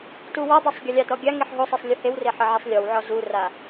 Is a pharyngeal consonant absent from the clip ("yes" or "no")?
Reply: no